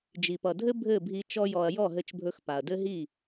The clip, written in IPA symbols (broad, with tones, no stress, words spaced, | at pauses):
d͡ʒi˨pʌ˨dʱɘ˦ bʱɘ˦˨bʱi˧ t͡ʃɔ˦jɔ˧ɐ̯ jɔ˦˨ɦɘ˧t͡ʃbʱɵ˧x pa˨ɐ̯dɘ˦ɦi˦˨